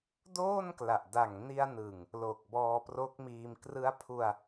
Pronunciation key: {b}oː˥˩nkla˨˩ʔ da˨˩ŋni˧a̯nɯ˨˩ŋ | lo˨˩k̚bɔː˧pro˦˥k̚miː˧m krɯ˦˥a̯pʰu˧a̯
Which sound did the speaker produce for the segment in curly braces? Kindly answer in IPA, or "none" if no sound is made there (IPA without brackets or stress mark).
d